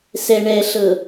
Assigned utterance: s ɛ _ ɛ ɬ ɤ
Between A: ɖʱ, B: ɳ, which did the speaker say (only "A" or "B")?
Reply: B